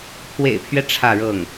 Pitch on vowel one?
low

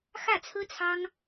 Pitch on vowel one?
falling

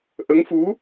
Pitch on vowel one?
rising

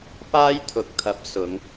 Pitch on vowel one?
high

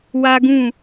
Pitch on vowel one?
high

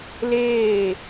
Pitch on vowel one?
falling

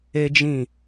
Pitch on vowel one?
high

